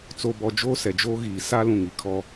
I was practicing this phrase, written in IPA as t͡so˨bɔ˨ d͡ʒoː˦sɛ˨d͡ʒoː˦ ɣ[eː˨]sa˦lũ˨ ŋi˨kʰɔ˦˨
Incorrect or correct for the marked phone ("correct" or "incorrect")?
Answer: incorrect